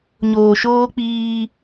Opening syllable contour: low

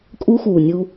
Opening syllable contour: high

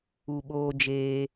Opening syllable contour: low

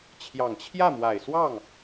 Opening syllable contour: low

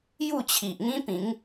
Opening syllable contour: falling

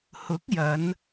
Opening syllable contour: rising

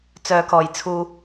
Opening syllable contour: low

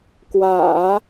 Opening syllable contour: low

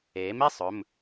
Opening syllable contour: rising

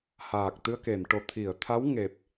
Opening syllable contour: low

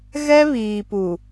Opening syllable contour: high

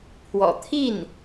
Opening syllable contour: low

